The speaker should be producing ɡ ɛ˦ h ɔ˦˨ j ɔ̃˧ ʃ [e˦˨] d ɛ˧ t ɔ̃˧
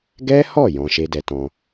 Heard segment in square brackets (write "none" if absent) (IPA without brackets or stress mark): e˦